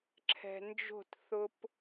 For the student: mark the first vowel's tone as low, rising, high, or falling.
low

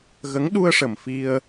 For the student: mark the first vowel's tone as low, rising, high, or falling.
rising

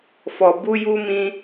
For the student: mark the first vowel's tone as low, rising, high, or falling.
low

